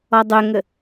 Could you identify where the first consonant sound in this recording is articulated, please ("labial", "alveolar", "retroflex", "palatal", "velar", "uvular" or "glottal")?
alveolar